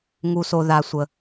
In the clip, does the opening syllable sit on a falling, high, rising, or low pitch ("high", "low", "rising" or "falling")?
low